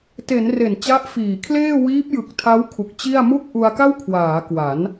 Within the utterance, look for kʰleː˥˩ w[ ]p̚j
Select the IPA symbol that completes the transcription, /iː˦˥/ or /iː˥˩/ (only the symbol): iː˦˥